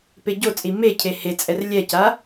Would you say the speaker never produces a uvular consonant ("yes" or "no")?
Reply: yes